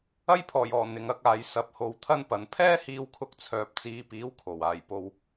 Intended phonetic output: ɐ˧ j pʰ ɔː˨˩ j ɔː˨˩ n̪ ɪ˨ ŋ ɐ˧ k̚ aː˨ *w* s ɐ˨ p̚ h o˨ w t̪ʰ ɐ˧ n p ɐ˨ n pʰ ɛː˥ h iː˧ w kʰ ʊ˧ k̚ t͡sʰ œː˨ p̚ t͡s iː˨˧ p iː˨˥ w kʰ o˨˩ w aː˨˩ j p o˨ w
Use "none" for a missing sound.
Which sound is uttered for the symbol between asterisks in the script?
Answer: j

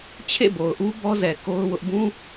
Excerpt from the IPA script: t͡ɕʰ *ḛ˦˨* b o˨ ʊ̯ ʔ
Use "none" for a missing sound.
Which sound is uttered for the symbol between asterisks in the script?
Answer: ḛ˦˨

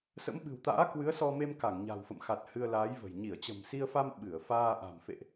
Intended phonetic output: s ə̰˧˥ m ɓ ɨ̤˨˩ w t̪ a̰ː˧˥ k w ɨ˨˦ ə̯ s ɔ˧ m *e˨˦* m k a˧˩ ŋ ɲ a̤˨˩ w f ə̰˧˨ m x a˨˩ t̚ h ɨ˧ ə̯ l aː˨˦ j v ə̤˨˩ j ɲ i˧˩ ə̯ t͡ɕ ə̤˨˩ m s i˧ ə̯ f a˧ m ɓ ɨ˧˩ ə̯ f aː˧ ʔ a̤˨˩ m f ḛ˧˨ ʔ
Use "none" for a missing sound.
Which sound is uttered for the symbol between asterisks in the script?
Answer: e˧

